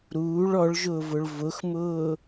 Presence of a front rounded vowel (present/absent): absent